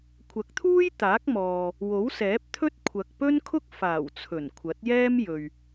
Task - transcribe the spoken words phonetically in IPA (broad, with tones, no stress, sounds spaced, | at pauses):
kʷʰ ɐ˨˥ k̚ t̪ʰ uː˥ j t̪ aː˨˥ k̚ m ɔː˨ | w o˨˥ w s ɛː˨˥ p̚ t̪ʰ ɵ˥ t̚ kʷʰ ɐ˨ k̚ p ɵ˥ n kʰ ʊ˥ k̚ f aː˨˩ w t͡sʰ ɵ˨˩ n kʷʰ ɐ˨˥ t̚ j ɛː˥ m j ɵ˨ ɥ